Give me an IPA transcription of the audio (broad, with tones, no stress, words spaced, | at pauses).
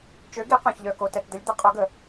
t͡ʃø˩˥ɡi˩˥qœ̃˩çʎœ˩ ko˩tɛ˩td̪ə˩˥lʲd̪ə˩˥ qʼo˩˥ɡə˩